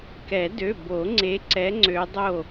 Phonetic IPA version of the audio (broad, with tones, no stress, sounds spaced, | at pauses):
k ɛ˨˩˦ d ø˩˧˩ b o˨˩˦ ŋ͡ǀ e˨˦ ǀ ɛ˨˦ ŋ͡ǀ ø˨˦ dˤ o˥˩